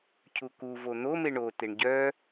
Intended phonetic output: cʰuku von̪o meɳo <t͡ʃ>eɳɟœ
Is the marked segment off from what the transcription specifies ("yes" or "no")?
yes